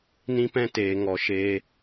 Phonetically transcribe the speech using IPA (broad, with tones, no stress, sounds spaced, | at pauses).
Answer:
n ĩ˦ p ɛ̃˦ t eː˨ ŋ ɔ˨ ʃ e˧